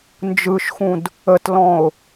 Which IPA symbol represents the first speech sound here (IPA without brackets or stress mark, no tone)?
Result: n